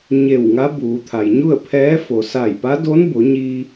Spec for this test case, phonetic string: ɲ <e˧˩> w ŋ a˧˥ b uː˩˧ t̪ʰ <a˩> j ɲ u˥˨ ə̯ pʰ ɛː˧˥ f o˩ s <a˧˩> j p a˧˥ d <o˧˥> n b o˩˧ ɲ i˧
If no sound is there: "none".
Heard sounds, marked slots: e˧˩, a˩, a˧˩, o˧˥

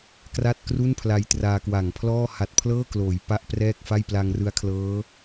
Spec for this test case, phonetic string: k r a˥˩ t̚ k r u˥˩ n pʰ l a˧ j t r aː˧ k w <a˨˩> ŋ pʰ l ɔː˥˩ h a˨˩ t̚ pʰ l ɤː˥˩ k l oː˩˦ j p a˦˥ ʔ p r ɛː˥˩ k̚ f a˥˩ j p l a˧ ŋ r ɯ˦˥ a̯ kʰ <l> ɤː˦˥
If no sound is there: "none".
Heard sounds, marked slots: a˨˩, l

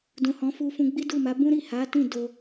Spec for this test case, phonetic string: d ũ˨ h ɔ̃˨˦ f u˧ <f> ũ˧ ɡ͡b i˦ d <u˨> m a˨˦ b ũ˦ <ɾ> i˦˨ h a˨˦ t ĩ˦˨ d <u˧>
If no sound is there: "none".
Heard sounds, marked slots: f, u˦˨, ɾ, o˧

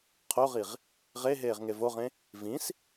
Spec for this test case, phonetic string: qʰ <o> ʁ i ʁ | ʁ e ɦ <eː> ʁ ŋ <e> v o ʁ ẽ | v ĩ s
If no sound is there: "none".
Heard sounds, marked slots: o, eː, e

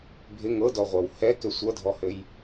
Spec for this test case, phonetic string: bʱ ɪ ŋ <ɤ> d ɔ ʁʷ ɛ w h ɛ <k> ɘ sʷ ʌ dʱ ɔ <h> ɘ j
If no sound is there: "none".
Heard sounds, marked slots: ɤ, k, h

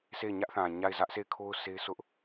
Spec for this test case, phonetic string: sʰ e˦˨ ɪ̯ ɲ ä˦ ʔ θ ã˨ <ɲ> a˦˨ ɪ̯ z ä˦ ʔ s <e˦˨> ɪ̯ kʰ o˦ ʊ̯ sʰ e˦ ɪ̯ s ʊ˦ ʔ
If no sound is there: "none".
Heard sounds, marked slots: ɲ, e˦˨

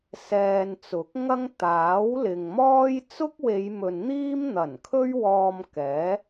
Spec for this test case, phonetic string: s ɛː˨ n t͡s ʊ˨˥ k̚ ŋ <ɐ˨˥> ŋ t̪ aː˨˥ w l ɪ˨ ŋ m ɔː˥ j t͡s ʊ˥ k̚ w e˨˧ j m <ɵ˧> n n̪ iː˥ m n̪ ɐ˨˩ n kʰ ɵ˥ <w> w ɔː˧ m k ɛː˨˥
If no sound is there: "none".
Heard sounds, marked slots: ɐ˥, ɵ˨, ɥ

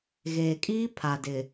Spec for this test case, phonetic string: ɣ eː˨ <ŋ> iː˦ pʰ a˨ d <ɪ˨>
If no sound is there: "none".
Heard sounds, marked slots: kʼ, ɪ˨

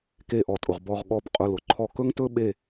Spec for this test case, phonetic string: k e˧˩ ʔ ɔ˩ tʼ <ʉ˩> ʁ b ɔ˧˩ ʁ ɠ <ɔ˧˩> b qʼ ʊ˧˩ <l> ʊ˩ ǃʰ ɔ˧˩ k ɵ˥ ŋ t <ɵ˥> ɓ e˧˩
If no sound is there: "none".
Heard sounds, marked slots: ʊ˩, ɔ˧˩, l, ɵ˥

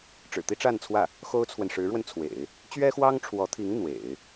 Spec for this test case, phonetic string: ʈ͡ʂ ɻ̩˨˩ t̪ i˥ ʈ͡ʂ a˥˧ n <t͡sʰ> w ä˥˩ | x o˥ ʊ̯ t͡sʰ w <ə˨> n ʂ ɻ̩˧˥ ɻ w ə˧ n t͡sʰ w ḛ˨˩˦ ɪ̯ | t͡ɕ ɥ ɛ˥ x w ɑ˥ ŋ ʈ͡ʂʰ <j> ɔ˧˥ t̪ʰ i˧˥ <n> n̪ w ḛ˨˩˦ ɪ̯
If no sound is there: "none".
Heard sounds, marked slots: t͡sʰ, ə˨, w, ŋ

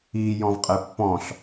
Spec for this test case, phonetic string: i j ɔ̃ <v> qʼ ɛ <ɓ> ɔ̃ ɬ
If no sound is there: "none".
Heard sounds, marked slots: v, pː

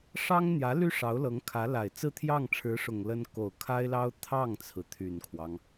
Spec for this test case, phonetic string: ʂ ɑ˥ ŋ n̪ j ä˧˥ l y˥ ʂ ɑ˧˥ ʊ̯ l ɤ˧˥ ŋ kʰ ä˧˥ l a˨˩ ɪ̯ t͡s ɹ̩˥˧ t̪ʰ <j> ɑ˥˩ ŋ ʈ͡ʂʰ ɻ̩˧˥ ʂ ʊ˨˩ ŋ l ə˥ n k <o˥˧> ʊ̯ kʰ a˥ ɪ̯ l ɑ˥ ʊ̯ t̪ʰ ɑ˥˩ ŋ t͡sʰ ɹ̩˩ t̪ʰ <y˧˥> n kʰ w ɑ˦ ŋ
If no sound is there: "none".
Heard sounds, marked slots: j, o˨˩, y˨˩

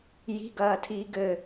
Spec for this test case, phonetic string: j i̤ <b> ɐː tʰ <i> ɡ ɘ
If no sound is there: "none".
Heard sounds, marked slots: ɡ, iː

